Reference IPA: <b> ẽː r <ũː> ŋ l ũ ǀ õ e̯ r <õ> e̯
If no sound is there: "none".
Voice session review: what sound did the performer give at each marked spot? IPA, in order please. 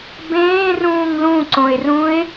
b, ũː, ũ

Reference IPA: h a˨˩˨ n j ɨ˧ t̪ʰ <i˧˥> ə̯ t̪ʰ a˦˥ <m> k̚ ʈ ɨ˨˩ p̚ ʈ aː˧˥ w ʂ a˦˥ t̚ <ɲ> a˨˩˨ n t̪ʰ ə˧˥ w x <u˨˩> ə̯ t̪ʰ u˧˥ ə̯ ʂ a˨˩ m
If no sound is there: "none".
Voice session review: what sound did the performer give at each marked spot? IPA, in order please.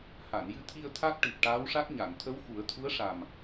i˧, none, ɲ, u˨˩˦

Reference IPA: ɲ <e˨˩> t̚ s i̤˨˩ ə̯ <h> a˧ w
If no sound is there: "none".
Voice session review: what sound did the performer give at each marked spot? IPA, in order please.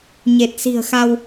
e˨˩, x

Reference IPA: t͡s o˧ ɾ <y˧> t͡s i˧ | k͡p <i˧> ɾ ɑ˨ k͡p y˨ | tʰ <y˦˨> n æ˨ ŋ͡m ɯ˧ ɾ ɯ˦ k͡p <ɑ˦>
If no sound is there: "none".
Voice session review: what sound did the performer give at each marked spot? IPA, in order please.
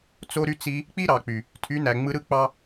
y˧, i˦, y˨˦, ɑ˦

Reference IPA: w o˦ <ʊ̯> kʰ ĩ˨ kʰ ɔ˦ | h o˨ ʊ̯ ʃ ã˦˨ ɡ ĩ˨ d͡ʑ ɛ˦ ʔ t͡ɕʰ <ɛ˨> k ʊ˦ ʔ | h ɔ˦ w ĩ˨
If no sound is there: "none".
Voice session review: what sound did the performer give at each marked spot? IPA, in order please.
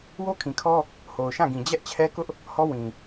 none, ɛ˦

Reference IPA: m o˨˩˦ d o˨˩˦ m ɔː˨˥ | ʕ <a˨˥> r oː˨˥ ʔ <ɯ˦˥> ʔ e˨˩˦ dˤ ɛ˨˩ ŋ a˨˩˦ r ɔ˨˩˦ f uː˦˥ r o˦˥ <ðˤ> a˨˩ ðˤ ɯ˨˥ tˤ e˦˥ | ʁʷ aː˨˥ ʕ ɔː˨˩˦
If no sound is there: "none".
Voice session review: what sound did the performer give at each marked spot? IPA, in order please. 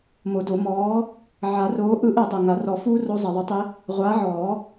a˨˩˦, ɯ˦˥, zˤ

